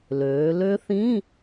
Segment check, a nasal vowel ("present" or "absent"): present